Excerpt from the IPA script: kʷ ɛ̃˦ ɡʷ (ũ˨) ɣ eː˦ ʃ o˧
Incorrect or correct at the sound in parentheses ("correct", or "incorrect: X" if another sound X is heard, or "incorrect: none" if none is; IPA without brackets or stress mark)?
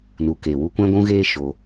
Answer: incorrect: ũ˦